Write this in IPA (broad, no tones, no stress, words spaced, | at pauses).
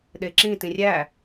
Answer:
ɗeǁĩ tĩrʲæ